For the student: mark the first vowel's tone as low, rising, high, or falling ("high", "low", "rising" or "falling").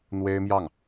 high